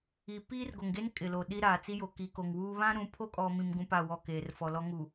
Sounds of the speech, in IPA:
i˨ piː˦rɡo˨ŋɡe˦n kʼɪ˨lo˨ɗi˦ ɾaː˨t͡si˦jo˨ ki˨ko˨ŋwuː˦ βã˦ ɾũ˨˦pʰo˦kʼɔ˨mĩ˨m ɡũ˦pa˦˨wɔ˦˨ keː˨rfɔ˨lɔ˦ ŋu˨

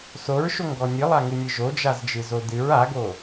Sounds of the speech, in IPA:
soɹʃoŋɡɔ nʲɨlˠaŋɨnʲɨ ʒod͡ʒazd͡ʒɨzo dɨɹ aɡo

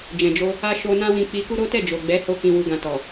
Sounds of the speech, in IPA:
d͡ʒɛ̃˨d͡ʒo˧ | a˧ ʃo˧ nã˦wĩ˧ k͡pi˧ku˦ɾo˦ tɛ˦˨d͡ʒo˨ɡ͡bɛ˨˦ho˧ kĩ˨wu˨ɡã˨ tɔ˨

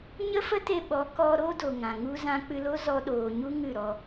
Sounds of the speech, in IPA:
ɲə˦fə˦te˧ ɓɔ˨˦kɔ˧ ɾo˦do˨ ŋã˨ŋu˦zã˦ k͡pɨ˧lo˦ zɔ˧ɗoː˨ɲu˦ ŋɨ˦˨ɾɔ˧

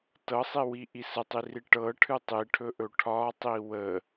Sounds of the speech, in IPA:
tɤsˤiwiʔi sətˤiri ʈɤʈʰɨ tˤiʈʰɵʔɵ ʈʰɒtˤi wə

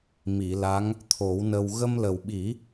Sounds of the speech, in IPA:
mi˨˩˨la˧˥ŋ | t̪ʰo˨˩˦wnə˧w ɣə˧mlə˨˩wɓi˨˩˦

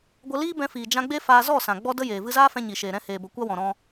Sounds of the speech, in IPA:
ɡʷə˧liː˦bɛ̃˧ fiː˨d͡ʒã˧ɡ͡be˦ faː˧zɔ˦˨sã˨ ɡ͡bɔ˦də˦jeː˨ vɨ˧zaː˦fɛ̃˧ ɲi˨ʃeː˨ ɾɛ̃˧ heː˨bə˨˦kʷa˦wɔ̃˨ ɾɔ̃˧

